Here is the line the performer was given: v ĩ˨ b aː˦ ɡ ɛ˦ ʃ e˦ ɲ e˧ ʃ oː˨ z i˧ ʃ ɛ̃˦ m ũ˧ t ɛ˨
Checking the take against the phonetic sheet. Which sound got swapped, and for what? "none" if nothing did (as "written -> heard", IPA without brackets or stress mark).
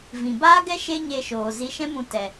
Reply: none